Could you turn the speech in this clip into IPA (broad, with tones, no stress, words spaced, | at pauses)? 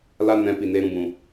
la˦ nɛ̃˧ pi˨neː˧ɾũ˧bũ˨